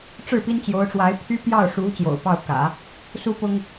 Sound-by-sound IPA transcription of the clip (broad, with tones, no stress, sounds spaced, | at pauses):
ʈ͡ʂ ɻ̩˥˩ p i˥ n t͡ɕ j o˧˥ ʊ̯ ʈ͡ʂ w a˧˥ ɪ̯ pʰ y˥ p j ɑ˥˩ ʊ̯ ʂ u˧˥ t͡ɕ j o̰˨˩ ʊ̯ p ɑ˥˩ ʊ̯ k ä̰˨˩˦ | s u˥ p ʊ˥ ŋ